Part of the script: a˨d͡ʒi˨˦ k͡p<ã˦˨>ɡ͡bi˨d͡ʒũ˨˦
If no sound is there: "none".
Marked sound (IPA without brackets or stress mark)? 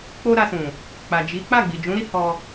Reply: a˦˨